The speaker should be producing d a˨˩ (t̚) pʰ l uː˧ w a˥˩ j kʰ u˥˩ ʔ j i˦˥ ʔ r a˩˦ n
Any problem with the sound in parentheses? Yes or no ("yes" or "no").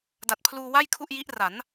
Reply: no